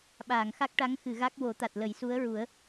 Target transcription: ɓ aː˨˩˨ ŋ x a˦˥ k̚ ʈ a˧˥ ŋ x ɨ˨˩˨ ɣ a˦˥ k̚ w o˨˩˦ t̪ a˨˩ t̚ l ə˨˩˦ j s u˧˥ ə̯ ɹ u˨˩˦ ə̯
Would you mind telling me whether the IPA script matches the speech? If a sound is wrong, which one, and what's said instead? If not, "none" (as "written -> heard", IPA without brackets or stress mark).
none